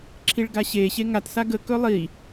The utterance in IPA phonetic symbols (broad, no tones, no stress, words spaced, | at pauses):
ǁʰiɭɡaɕe ɕeŋat saɡə kɵlˠi